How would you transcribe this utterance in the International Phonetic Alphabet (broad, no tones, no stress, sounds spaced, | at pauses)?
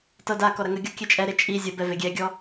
t ɤ d a k ɔ ɾ ɐ ŋ ə ɡʲ ɔ kʲ ɛ t͡ʃʼ ɛ ɾ e t͡ʃʼ i zʲ ə b ɛ v e ɡʲ ɛ ɡʲ ɔ